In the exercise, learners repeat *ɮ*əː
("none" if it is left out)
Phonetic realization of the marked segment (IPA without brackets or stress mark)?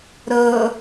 ɾ